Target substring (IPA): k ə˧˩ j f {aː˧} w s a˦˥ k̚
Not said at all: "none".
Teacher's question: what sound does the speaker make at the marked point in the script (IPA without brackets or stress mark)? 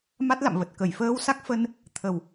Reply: əː˧